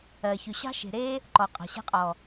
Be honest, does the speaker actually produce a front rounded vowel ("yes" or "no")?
yes